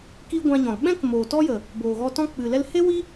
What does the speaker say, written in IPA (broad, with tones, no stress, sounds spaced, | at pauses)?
k i˧ ɡʷ ã˧ ɲ ɔ̃˨ l ɓ ɛ̃˦ k m oː˨ t ɔ˦ j ə˨ | b oː˨ ɣ ɔ˧ t ɔ̃˦ k͡p ɨ˨ l ɛ˧ l h e˦ w i˦